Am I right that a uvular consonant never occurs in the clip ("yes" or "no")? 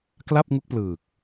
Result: yes